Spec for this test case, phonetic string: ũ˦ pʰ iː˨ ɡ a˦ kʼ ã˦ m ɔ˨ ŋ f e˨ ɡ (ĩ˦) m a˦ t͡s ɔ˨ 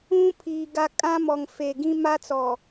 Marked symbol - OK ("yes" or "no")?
yes